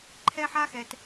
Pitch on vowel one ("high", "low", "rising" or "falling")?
high